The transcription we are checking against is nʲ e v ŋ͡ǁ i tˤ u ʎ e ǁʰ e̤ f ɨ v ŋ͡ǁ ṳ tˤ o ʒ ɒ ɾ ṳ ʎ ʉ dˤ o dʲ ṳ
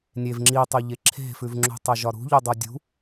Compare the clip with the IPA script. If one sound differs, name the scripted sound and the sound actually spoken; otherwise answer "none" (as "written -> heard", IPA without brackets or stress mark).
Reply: ɨ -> ʉ